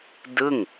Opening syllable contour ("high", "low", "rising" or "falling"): falling